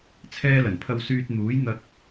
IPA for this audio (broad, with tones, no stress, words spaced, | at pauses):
t͡sʰɛː˥lɐ˨˩n pʰɐ˧wsyː˧t̚n̪uː˨˥jn̪ɐ˧k̚